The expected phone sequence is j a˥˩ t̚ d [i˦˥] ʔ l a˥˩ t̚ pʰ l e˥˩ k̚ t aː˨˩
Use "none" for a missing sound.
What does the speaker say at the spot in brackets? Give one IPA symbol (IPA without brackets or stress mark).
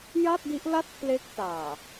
i˦˥